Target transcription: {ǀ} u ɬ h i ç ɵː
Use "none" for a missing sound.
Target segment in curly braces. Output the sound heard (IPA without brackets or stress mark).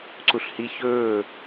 ǀ